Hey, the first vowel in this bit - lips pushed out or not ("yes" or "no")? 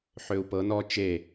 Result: yes